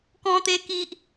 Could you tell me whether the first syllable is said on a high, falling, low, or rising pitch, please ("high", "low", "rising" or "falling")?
high